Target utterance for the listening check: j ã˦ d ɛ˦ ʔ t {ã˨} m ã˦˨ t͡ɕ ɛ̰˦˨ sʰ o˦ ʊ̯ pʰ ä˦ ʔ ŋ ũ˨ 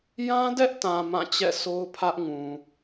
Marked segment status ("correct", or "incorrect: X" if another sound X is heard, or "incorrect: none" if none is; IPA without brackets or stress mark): correct